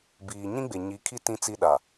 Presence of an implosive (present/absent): present